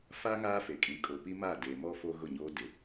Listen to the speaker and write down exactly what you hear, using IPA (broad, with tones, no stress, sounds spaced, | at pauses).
f a˦ ŋ aː˦ f e˨ kʼ ĩ˨˦ kʼ o˨ p i˦ m a˦˨ d e˨ m ɔ˦ f o˦ ɣ ʊ˦˨ ɲ oː˦ d ɪ˨˦